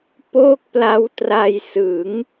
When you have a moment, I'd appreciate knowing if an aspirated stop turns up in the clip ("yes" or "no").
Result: no